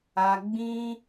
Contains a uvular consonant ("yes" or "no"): no